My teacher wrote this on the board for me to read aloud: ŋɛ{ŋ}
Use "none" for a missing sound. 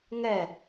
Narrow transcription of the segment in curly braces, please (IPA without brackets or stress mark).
none